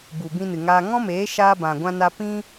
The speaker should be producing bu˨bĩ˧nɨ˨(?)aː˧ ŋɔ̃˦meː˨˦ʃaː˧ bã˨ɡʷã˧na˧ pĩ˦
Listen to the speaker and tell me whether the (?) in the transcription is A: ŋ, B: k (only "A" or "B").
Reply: A